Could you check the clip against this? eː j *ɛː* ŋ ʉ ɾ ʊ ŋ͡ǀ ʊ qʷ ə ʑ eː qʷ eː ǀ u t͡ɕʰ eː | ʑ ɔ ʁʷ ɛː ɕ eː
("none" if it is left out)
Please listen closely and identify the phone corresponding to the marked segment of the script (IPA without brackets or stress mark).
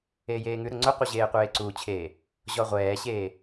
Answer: eː